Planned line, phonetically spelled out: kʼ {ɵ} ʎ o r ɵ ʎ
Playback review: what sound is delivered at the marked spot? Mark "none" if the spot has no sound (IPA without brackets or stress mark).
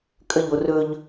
ə